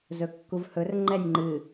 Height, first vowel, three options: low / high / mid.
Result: mid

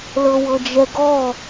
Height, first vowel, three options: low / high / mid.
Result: mid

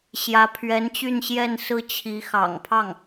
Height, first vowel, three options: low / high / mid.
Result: low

